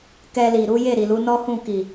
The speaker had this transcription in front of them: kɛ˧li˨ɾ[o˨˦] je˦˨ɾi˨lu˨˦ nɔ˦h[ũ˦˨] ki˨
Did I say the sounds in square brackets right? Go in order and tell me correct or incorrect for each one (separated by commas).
incorrect, correct